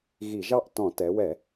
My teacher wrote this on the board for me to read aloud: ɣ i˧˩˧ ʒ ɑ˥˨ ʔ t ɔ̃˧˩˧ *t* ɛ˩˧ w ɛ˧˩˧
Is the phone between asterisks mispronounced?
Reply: no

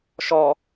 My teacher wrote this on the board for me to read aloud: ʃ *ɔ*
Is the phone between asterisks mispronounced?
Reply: no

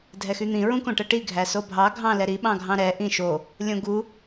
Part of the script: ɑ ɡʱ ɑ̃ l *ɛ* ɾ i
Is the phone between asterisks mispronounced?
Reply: no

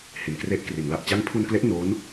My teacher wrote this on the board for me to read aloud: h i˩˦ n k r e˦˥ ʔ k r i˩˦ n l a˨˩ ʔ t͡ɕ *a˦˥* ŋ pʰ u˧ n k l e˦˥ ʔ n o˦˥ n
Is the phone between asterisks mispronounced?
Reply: no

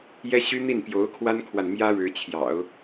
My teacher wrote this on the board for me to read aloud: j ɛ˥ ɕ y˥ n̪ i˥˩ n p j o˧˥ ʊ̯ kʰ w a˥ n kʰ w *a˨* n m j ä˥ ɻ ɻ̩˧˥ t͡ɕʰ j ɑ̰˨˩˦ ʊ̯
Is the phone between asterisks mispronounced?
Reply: no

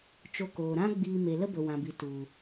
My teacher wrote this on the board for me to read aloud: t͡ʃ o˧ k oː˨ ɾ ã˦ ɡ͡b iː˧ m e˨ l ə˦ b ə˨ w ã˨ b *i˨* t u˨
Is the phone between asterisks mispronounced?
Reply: no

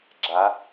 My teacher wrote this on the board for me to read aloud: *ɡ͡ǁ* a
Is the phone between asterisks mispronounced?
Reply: no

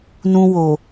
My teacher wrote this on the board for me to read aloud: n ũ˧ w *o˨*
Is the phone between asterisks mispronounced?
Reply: no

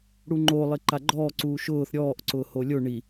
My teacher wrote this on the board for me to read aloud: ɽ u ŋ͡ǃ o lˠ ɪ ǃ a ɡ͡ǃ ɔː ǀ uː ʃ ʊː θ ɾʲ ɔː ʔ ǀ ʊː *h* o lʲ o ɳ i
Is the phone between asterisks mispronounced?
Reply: no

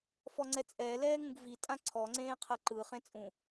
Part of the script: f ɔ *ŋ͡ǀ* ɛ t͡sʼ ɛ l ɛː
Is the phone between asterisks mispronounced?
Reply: no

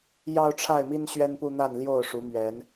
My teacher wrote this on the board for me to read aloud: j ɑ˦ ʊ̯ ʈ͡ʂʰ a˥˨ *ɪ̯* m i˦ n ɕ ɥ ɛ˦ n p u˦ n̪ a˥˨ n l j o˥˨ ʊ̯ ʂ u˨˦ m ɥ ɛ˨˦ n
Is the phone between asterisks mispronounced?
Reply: no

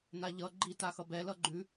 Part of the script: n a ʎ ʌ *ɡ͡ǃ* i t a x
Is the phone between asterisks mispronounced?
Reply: no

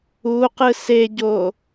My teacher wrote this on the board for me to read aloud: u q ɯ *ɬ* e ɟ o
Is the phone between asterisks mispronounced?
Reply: yes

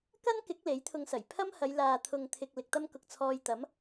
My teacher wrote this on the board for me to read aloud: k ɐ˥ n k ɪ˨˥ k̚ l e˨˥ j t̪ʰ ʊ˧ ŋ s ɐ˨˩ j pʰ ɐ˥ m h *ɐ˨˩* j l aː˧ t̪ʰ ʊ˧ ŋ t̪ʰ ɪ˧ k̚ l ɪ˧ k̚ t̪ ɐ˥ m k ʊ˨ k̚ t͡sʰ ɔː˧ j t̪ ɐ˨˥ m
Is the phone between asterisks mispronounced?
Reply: yes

